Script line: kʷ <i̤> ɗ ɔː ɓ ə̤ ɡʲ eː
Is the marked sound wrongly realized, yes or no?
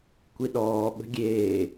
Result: yes